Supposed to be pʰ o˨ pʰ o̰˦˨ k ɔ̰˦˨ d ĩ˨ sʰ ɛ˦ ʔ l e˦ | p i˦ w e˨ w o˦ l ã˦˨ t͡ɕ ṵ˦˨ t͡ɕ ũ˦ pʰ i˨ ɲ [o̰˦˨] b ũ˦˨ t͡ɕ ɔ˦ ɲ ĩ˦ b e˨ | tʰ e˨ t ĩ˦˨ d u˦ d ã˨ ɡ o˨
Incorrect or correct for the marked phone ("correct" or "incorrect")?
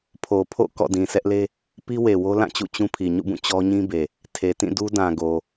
incorrect